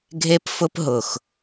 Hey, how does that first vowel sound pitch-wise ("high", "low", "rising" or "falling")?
high